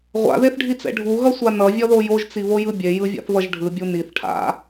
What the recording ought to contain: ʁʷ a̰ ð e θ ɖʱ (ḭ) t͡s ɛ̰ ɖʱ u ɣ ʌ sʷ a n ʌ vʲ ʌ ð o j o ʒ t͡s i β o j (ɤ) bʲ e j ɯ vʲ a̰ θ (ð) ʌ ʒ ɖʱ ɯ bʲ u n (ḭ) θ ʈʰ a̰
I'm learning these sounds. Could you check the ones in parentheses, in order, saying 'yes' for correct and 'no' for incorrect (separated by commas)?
no, no, no, no